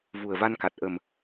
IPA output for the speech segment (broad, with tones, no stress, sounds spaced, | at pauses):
v u˨˩ ə̯ v a˧ n k a˨˩ t̚ ʔ ə˨˩ m